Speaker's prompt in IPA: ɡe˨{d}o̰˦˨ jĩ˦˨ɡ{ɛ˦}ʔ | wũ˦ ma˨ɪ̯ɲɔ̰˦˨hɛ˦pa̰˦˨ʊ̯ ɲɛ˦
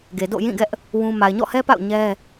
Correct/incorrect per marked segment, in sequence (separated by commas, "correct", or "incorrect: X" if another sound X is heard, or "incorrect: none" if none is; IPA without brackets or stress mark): correct, correct